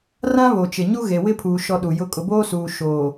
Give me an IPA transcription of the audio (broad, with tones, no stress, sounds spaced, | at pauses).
r ã˦ β o˨ t͡ʃ ɪ˨ ɲ u˦ ɣ e˨ w ɪ˦ pʰ uː˨ ʃ ɔ˦ ɗ u˨ j ʊ˦ kʼ ʊ˨ b oː˦ s uː˨ ʃ oː˨